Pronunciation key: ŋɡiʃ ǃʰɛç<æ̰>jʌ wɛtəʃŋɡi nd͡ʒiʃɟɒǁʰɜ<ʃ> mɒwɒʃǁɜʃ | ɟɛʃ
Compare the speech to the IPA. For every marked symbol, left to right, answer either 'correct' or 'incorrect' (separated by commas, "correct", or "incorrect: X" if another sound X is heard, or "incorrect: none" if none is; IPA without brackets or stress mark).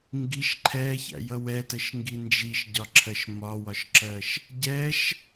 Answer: correct, correct